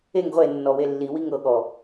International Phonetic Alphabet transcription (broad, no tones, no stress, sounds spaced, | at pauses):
e ŋ ʁʷ e nː ɔ w e lː i w i ŋ ɤ ɠ ɔ